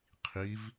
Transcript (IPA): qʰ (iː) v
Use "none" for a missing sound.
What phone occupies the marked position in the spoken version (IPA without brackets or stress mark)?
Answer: i